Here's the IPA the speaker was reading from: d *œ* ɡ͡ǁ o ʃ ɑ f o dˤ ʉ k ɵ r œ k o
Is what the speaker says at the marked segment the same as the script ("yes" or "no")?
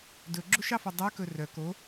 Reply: no